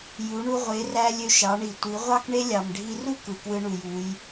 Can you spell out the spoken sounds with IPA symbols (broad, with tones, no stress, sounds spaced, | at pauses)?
j u˩˧ ɳ u˧ ʁʷ e˩˧ r æ˧ lʲ ø˧ ʃ ɑ˩˧ ɳ i˩ tʷ i˩˧ ʁʷ ɑ˥ k ɳ e˥ lʲ ɑ˩ m ɖʱ i˧ r u˥ k ɯ˩ k w ɯ˧ ɳ u˩ j u˩˧ j